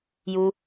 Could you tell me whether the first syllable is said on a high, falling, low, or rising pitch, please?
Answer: high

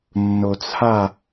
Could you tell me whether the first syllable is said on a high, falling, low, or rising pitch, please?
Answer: low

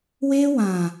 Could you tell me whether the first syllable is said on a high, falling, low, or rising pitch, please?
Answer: high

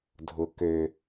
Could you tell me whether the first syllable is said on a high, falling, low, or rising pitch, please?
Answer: low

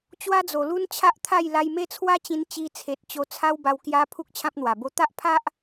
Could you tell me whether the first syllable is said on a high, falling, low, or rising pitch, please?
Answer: high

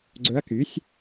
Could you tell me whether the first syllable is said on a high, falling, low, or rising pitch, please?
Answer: rising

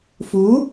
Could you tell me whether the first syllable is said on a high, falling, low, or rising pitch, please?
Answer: rising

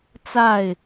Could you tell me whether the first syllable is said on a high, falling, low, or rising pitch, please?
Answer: falling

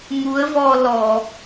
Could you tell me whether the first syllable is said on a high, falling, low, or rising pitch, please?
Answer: rising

